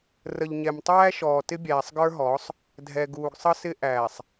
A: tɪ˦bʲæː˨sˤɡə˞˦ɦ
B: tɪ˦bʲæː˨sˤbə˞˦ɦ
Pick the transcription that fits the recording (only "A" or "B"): A